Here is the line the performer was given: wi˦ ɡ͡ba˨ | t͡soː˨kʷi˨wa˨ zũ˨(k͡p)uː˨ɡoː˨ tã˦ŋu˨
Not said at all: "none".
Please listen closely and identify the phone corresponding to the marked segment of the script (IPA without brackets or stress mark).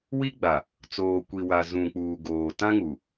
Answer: k͡p